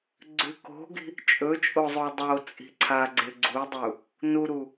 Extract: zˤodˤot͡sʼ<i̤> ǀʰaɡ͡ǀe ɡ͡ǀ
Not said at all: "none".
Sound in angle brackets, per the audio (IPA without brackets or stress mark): i̤